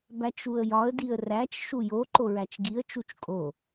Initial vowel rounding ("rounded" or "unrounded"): unrounded